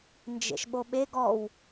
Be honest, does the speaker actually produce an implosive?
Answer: yes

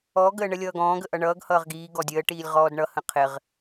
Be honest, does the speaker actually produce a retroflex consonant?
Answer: yes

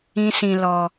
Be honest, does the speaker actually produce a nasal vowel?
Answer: yes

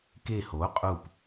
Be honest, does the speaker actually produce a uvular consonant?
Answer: yes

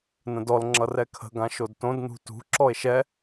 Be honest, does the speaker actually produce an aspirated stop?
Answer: yes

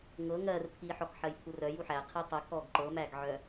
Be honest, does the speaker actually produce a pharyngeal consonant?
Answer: yes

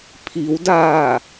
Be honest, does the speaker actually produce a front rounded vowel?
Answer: no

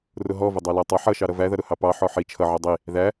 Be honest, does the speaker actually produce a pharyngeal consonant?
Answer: yes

